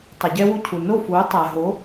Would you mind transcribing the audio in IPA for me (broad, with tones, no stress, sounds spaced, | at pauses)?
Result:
tˤ ɪ˩ ɟ ɛ˥ w u˥˩ cʰ u˩ n o˥˩ f u˩˥ tˤ a˩ ɦ o˩˥